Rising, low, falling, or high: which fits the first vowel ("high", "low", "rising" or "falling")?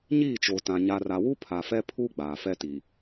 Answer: falling